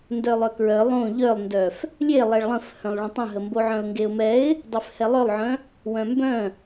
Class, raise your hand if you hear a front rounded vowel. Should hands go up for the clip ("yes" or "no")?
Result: yes